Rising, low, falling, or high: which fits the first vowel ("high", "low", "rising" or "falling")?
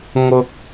high